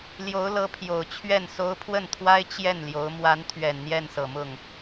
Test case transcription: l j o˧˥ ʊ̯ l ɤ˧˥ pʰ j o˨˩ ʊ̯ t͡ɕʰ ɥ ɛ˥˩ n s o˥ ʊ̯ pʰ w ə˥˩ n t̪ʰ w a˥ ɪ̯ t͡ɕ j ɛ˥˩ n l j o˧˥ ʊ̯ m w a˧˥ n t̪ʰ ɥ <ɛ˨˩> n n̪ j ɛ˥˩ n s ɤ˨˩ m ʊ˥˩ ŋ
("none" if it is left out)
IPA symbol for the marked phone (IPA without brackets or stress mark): ɛ˨˩